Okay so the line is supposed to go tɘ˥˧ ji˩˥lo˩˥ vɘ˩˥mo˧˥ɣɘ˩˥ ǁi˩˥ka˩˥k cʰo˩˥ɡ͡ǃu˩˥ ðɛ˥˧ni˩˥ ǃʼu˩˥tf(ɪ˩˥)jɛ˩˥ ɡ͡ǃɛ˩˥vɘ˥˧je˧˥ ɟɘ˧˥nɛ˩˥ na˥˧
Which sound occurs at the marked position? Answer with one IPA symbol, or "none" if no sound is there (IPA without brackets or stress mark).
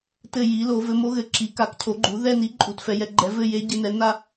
ɛ˩˥